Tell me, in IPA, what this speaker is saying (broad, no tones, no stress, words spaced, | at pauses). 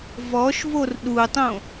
vɔʃvor ɗutˤõ